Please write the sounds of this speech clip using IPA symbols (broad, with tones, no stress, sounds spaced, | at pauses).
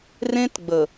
r ẽ˦ t ɡ͡b ə˨